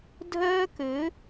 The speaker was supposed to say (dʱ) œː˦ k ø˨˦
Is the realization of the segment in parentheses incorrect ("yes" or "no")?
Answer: no